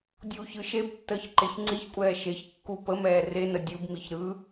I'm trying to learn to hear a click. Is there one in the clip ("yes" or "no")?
yes